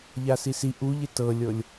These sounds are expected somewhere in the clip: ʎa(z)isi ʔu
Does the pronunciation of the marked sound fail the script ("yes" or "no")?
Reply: yes